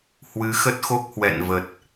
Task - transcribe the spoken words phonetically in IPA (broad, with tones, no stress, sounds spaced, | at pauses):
h w ɨ˨˦ x ə˦˥ t̚ x o˦˥ k̚ h w ɛ̰˧˨ n v ə˨˩ t̚